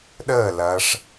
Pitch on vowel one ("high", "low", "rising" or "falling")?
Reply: falling